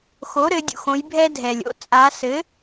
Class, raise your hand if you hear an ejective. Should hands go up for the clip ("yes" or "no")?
yes